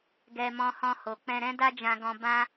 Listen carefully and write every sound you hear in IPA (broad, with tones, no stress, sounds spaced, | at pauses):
ɡ ɛ˧ m ɔ̃˧ h ɔ̃˧ h o˨ k͡p ɛ̃˧ ɾ ɛ̃˦ d a˦ d͡ʒ ã˧ ɡ ɔ̃˧ b ã˧